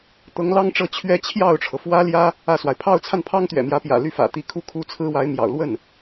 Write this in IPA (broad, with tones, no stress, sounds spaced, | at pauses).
t̪ ɤ˧˥ ŋ l ɑ˥ ŋ ʈ͡ʂ ɤ˥˧ t͡ɕʰ ɥ ɛ˥˧ t͡ɕʰ j ɑ˥˩ ʊ̯ ʈ͡ʂʰ ɤ˩ f w ä˥ l j ä˥ | ä˥˩ s w a˩ ɪ̯ pʰ ɑ˥˧ ʊ̯ t͡sʰ a˥˩ n pʰ ɑ˥ ŋ t̪ ɥ ɛ̰˨˩ m j ä˧˥ p j ä̰˨˩ l y˥˩ f ä̰˨˩ t̪ i˧˥ kʰ u˥˧ kʰ u˥˩ t͡sʰ ɹ̩˥ w a˧˥ ɪ̯ m j ɑ̰˨˩ ʊ̯ l w ə˥˩ n